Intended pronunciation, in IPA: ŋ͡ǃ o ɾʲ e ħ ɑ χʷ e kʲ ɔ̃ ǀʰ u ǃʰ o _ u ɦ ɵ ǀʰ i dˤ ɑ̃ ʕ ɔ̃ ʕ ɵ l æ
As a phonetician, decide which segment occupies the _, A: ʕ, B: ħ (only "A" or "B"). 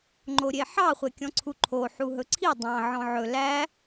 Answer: B